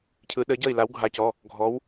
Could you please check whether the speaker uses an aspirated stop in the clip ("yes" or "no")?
yes